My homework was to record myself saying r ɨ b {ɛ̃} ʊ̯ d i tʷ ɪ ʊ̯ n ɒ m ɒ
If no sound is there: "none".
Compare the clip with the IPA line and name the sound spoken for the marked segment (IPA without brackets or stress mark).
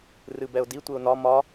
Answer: ɛ